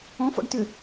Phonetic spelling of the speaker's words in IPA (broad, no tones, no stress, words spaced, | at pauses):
ɔ̃fɔ̰ɖ tʏ